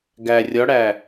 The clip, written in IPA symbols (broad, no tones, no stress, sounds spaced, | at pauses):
ɡ æ rʲ ɒ ɽ æ